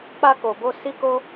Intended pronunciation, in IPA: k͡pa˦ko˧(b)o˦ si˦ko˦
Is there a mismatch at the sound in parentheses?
no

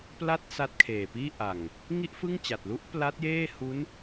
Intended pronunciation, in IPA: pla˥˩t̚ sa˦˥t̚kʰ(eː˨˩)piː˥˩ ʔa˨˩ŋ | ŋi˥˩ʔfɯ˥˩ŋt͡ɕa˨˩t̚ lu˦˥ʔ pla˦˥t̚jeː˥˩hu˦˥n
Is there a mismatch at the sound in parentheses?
no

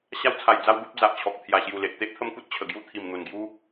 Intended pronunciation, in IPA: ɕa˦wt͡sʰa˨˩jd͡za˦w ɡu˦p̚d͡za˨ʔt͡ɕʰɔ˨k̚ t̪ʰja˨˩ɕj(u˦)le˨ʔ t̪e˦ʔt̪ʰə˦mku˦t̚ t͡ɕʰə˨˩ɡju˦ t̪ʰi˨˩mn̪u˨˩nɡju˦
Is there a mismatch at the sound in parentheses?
yes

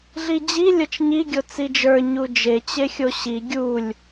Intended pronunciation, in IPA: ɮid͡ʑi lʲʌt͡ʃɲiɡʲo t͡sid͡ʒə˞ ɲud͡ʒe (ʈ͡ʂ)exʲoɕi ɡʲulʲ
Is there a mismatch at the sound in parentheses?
yes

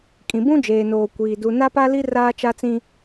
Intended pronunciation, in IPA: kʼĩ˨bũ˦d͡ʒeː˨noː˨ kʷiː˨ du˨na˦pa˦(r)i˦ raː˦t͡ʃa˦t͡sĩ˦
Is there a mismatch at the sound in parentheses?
yes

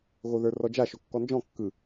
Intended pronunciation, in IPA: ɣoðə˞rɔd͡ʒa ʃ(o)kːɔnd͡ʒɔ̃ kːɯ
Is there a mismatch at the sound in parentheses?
no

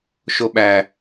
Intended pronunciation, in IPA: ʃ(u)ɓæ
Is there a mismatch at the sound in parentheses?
yes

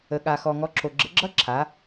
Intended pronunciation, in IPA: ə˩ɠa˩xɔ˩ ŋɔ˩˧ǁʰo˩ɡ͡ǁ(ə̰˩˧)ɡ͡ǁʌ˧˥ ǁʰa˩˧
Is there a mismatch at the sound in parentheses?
no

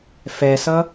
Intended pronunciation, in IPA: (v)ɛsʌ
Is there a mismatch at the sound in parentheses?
yes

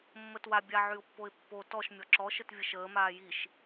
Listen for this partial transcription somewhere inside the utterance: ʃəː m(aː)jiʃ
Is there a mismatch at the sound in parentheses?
no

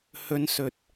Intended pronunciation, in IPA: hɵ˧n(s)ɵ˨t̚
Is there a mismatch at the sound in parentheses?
no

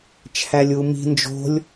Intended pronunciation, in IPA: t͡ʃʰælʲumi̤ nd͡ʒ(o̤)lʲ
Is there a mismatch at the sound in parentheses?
no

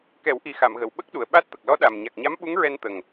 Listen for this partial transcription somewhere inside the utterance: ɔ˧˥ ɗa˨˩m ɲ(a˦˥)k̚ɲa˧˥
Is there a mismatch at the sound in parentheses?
yes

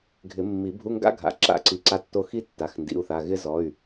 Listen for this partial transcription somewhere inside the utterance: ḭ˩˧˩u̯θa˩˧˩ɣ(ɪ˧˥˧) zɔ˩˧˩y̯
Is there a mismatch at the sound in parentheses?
yes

